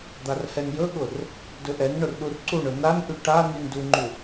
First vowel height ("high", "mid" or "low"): low